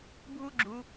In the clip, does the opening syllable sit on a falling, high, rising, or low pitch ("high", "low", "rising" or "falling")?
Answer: high